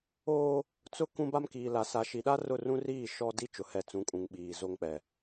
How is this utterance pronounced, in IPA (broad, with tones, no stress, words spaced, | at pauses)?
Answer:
oː˦ | t͡sʊ˦ kũ˦ba˦mkiː˨la˨ sa˨ʃi˨ɗa˦ rʊ˦˨rũ˦riː˦˨ ʃɔ˦ di˦t͡ʃʊ˨hɛ˨ t͡sũ˨˦kʼũ˨ŋ ɓiː˨ zo˦ŋk͡pɛ˨